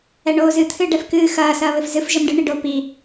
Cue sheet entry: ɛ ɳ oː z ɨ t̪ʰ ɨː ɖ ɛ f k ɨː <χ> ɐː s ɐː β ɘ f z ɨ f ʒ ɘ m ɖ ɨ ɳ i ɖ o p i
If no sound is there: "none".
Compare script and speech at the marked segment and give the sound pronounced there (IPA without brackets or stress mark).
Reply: x